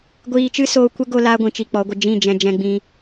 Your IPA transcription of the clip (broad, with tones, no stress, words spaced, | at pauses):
ɡʷiː˧t͡ʃɨ˦soː˧ kʷə˦ ɡo˧laː˧ɡʷĩ˨ t͡ʃi˧k͡pɔ˨˦ɡʷə˧ d͡ʒĩ˦˨d͡ʒɛ̃˧ d͡ʒɛ̃˧ɡ͡bĩ˧